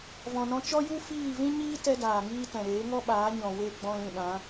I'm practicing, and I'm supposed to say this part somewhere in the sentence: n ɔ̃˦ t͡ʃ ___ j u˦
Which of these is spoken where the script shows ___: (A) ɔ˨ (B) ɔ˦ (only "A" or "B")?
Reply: B